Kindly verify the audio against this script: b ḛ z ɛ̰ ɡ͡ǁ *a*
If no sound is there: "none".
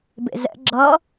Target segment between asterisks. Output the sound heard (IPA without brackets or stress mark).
ʌ